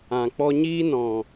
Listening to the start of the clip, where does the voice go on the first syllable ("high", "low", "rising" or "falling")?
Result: low